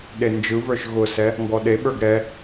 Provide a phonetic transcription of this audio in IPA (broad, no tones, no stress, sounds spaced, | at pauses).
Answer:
ɗ e n d͡ʒ ɯ v ə˞ ʃ ɣ ʊ s ɛ | ŋ ɡ ɔ ɗ e ɓ ə˞ ɡ ɾ ɛ